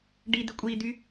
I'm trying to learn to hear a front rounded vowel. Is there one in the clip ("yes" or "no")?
yes